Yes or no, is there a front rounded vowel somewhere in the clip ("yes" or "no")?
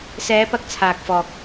no